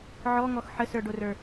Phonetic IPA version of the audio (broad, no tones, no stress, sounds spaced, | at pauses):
ʕ ɔ ŋ ɔ x ħ ə s ə˞ ɖ o r ə˞